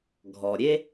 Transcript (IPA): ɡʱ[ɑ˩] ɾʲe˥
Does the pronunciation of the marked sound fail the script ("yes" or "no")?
yes